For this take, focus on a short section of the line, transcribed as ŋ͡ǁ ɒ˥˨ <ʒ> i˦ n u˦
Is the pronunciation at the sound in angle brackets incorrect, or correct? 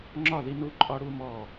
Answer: incorrect: ð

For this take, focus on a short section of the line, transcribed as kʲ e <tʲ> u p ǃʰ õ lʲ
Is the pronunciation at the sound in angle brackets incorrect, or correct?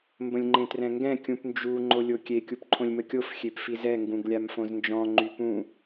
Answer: incorrect: kʲ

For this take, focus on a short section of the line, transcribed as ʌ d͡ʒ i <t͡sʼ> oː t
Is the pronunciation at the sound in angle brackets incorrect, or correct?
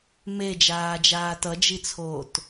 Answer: incorrect: t͡sʰ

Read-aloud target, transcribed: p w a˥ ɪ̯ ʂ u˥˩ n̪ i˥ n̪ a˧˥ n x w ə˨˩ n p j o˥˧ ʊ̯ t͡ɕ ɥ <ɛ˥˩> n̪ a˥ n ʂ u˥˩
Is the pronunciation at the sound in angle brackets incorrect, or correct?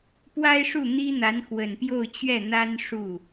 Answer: correct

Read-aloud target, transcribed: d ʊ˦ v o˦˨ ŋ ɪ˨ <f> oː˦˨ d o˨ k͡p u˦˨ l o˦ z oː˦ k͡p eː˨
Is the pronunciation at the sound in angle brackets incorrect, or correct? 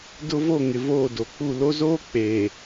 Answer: incorrect: v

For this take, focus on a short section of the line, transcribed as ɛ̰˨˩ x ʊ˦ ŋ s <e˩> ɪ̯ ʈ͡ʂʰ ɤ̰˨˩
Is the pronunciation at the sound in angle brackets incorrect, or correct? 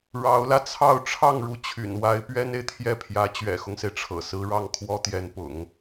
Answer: correct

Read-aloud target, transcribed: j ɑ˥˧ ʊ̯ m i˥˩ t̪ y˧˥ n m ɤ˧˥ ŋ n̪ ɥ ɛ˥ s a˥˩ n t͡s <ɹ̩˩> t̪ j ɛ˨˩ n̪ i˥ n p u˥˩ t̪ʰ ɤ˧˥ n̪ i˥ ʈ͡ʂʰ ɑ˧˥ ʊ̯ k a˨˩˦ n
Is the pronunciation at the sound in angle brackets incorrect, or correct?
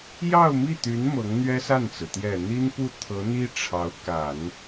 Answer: correct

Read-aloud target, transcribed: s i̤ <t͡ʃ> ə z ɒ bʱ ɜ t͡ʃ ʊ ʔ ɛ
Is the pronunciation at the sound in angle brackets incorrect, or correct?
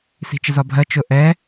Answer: correct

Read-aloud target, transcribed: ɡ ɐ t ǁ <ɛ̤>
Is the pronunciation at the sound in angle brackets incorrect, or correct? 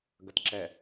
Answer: incorrect: ɛ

